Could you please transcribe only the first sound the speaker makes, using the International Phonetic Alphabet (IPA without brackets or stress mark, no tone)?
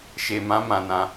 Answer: ʃ